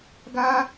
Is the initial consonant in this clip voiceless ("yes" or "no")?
no